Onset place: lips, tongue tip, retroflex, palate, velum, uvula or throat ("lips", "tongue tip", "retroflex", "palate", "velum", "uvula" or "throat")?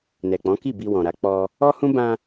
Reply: tongue tip